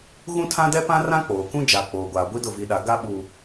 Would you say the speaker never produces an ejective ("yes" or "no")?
yes